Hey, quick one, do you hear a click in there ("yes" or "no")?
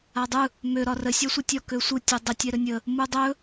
no